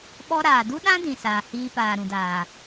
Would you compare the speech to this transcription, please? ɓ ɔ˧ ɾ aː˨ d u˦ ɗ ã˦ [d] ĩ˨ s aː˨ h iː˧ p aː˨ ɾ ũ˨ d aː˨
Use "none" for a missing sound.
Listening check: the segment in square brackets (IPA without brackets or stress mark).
d